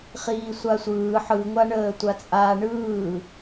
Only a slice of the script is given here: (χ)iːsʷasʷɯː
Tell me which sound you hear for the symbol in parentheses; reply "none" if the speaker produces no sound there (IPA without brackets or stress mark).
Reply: χ